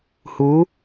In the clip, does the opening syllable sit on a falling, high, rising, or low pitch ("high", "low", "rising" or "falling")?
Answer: rising